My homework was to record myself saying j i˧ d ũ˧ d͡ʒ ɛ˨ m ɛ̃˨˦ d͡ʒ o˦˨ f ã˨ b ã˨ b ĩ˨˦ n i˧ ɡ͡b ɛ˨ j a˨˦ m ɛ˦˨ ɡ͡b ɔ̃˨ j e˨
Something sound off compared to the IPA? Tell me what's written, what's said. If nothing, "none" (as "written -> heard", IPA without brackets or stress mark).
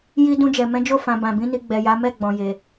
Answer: none